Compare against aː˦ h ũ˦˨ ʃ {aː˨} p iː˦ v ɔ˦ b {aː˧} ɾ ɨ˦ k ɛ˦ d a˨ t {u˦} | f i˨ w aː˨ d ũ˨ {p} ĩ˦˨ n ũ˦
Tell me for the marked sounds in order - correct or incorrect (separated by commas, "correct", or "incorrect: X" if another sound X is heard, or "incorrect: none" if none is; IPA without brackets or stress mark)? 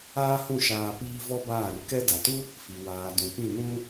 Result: incorrect: aː˧, incorrect: aː˦˨, correct, correct